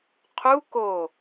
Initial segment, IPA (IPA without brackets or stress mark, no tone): qʰ